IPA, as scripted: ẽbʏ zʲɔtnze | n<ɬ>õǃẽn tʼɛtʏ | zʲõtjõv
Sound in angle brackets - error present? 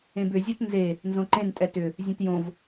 yes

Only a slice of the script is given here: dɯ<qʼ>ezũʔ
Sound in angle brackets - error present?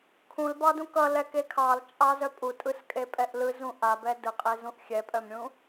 no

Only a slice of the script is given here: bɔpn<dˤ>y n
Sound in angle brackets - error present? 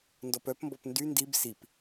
yes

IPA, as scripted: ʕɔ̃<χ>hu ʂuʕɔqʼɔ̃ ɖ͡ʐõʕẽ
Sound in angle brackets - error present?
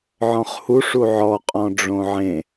no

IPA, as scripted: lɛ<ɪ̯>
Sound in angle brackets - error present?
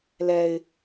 no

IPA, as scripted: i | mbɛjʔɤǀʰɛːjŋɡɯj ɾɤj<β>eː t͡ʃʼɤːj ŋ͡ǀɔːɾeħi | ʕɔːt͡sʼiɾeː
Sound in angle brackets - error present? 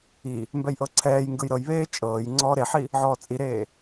no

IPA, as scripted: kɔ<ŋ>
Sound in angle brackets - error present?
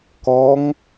no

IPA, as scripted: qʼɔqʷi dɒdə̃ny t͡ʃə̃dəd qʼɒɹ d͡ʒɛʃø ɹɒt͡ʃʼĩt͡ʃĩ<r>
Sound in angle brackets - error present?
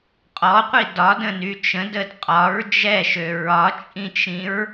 yes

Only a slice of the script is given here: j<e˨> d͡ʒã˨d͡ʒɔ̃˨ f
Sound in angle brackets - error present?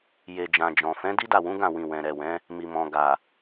no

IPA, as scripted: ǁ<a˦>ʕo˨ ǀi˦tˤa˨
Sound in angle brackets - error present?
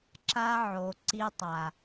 no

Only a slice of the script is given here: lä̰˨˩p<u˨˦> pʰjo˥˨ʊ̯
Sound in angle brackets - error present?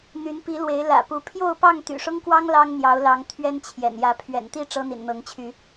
no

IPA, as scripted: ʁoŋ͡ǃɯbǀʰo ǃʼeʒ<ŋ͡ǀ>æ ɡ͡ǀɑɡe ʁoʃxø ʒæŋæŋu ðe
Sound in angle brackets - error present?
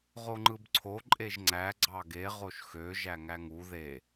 no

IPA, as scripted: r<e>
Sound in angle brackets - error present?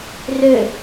yes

